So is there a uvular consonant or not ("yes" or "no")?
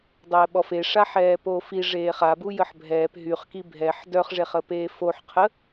yes